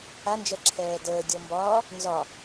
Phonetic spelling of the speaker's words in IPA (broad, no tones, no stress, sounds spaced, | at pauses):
a n d͡ʒ ɛ ǁʰ ɛː d əː dʲ ɔ m b ɒː | n z ɒ